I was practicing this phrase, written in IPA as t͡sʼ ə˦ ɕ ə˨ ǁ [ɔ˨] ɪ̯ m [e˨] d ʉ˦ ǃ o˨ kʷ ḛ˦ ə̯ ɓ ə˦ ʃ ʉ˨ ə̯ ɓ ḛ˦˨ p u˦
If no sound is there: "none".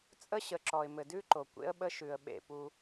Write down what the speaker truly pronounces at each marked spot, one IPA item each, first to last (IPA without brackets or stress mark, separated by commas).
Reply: ɔ˨, ɘ˨